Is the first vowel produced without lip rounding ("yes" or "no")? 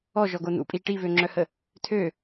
no